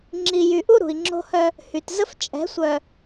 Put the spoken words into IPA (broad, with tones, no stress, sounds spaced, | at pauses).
ŋ͡ǁ i˨ j y˨ ʔ u˦ ɾ ṳ˨ i̯ ŋ͡ǁ o̤˦ h œ˦ | h y˨ t z ə˦ f t͡ʃʼ ɛ̤˨˦ sʷ œ˨